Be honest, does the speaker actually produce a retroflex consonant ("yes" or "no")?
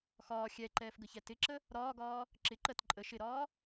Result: no